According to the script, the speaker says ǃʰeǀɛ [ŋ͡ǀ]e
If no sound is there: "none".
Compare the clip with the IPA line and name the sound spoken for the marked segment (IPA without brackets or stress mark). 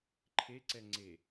ŋ͡ǀ